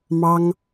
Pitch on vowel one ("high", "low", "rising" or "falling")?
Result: high